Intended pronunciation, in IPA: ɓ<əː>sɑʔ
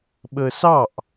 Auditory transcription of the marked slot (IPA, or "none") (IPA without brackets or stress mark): əː